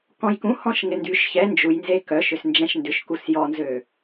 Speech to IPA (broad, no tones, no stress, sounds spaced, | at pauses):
k ɔ̃ j k ũ h ɔ̃ ʃ ŋ ɪ n d y ʃ ç ɛ n d͡ʒ u j n z e k œ ʃ ʏ s n d͡ʒ ɛ̃ ʃ n d ʏ ʃ k u s j ɔ n z ø